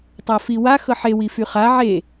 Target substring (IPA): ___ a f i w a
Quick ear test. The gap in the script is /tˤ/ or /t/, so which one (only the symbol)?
tˤ